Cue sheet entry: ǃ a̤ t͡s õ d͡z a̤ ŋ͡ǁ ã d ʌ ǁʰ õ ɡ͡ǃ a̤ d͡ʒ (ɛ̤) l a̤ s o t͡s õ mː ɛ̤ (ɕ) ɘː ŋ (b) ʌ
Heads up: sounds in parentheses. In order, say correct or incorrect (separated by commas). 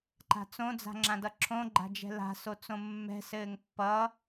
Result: correct, incorrect, incorrect